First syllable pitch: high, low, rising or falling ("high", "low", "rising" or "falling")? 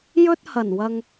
high